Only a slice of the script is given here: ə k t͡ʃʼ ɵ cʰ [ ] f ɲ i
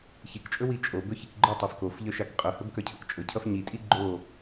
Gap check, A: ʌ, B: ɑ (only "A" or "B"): A